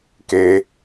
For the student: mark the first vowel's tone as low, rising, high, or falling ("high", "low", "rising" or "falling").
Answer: high